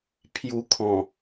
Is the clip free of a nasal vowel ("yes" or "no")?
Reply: no